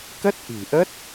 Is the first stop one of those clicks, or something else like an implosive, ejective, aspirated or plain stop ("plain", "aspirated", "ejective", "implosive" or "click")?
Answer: plain